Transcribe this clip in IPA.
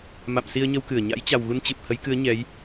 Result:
m a̰˧˨ m s i˧ ə̯ ɲ ə˧ w k ɨ˧˩ ə̯ ɲ a̰˧˥ j t͡ɕ a˨˩ w ɣ u˧ n t͡ɕ ɨ˨˩ p̚ h ə˨˦ j k ɨ˨˦ ə̯ ɲ ɛ˨˦ j

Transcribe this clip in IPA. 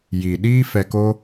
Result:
j i˨ ɗ iː˦ f ɛ˧ k o˦

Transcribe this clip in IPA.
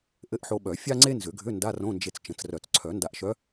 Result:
ʔ ɘ˧˥ ʔ ħ o˧ ɓ œ˨˩˦ fʲ a˥ ŋ͡ǀ e˥ n z ʏ˨˩˦ ɡʱ ʏ˧˥˧ n d a˧˥˧ r õ˧˥˧ n d͡ʒ e˧ t͡s t͡ʃ ə̃˨˩˦ t͡s r œ˨˩˦ t͡s ǀʰ œ˨˩˦ n d a˧ ʔ ʃ œ˧˥

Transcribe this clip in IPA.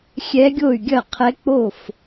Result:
xʲ ɛ˧˥ ɡʲ o˥˩ y̯ ɡʲ ɐ˥˩ qʰ ɛ˧˥ k͡p o˥˩ f

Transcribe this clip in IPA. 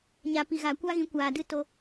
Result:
ɲ a˨ p i˨ ɣ aː˨ kʷ a˦ ɣ ĩ˨˦ kʷ aː˨ d ɨ˦ t o˧

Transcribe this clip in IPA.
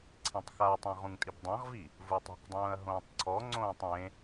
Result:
ǀʰ ẽ tˤ x a tˤ ɛ̃ ʁ ũ ŋ tʼ i b dˤ ã ʁ v i | v u tˤ ɛ̤ q dˤ ũː ɐ̯ ɦ õː tˤ ǀʰ ɔ ŋ͡ǀ õː tˤ ẽ

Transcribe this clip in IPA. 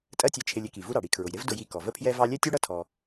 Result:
tʼ ɜ˥ tʲ ɛ˧ t͡ʃʰ ɪ˧ lʲ ɪ˥ k i˩ v u˥ ɾ ɑ˩ ɽ i˧ kʰ ɹ ʊ˩ j ɾ ɪ˥ v d ʊ˧ j i˧ k ɔ˩ v ə˥ pʰ j ɛ˥ v ɑ˥ lʲ ɛ˥ tʲ u˥ ɽ ʌ˥ tʰ ɔ˧

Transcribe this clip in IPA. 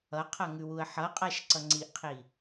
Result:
ʌ qʰ ʌ ŋ ʉ w u ə̯ ħ ʌ qʼ a ʃ ǀ ʌ ŋ͡ǀ i ʔ qʰ i

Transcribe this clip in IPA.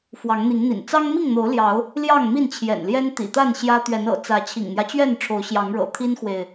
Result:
f w ɑ˨˦ ŋ n̪ i˨˦ ŋ n̪ ḭ˨˩ n t͡s ɑ˦ ŋ m i˥˨ ŋ n̪ o˨˦ ʊ̯ l j ɑ˨˦ ʊ̯ | l j ɑ˥˨ ŋ m i˥˨ n t͡ɕʰ j ɛ̰˨˩ n l j ɛ˦ n t̪ ḭ˨˩ t̪ a˥˨ n ɕ j ä˦ t̪ ɥ ɛ˨˦ n ɤ̰˨˩ t͡s ä˨˦ t͡ɕʰ ḭ˨˩ ŋ n̪ j ä˦ t͡ɕ ɥ ɛ˥˨ n ʈ͡ʂʰ o˨˦ ʊ̯ ɕ j ɑ˨˦ ŋ ɻ ɤ̰˨˩ t̪ʰ i˦ n x w e˨ ɪ̯

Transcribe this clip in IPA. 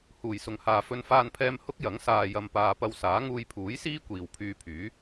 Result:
h uː˨˩ j s ʊ˨ ŋ h aː˨ f ɵ˧ n f aː˧ n pʰ ɛː˧ m h ʊ˥ k̚ j ɐ˨˥ ŋ s aː˧ j ɐ˧ m p aː˧ p ɐ˧ w s aː˨˥ ŋ uː˧ j pʰ uː˨˥ j s iː˥ kʷ iː˨ w pʰ yː˧ pʰ yː˨˥

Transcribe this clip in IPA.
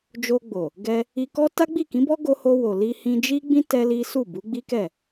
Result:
d͡ʒ o˧ ɡ͡b o˨ | ɡ ɛ˧ | i˧ k ɔ˦ t a˦ ɡ͡b i˦˨ k ĩ˨˦ b ɔ˦ ɡ o˧ h o˧ w o˨ l i˧ h ĩ˧ d͡ʒ i˦ ɡ͡b ĩ˦ t ɛ˦ l i˦ s u˦˨ b u˨˦ ɡ͡b i˦ k ɛ˦˨

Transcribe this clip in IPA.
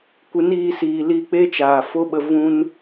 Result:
kʷ ɨ˨˦ n iː˧ s iː˨ l i˧ k͡p e˦ t͡ʃ aː˨ f o˦ ɓ ə˧ v ũ˦ n

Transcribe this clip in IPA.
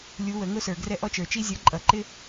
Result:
lʲ u˨˦ w ə˨˩˦ ŋ ʊ˦ s ə˞˨ ɡ r ɛ˦˨ ʔ ɔ˦ t͡ʃ ə˞˨ t͡ʃ i˦ zʲ ʌ˨˦ ǃʼ ʌ˨˩˦ ǃ ɪ˦

